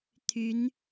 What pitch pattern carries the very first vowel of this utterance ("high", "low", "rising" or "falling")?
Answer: rising